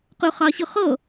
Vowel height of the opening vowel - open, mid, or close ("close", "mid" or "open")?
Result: close